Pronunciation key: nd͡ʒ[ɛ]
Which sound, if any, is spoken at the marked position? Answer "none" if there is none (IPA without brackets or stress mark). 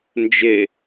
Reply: e